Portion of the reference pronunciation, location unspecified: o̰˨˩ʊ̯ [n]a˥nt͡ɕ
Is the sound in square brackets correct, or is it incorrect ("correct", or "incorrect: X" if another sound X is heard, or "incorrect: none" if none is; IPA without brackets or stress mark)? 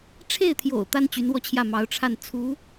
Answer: incorrect: t̪